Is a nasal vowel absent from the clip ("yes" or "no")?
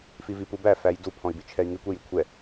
no